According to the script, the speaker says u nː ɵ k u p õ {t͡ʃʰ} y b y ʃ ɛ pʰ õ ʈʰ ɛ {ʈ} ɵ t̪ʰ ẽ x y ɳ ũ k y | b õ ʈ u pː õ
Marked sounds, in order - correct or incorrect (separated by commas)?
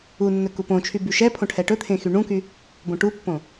correct, correct